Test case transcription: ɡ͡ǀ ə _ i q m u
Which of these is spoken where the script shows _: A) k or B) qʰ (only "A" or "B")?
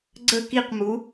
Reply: A